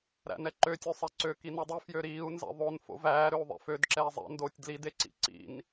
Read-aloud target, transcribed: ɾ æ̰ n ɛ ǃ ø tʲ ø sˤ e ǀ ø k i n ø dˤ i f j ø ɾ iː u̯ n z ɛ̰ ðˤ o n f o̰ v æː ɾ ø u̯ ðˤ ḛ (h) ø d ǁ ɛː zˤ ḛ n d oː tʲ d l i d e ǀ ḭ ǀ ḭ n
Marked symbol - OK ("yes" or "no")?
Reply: no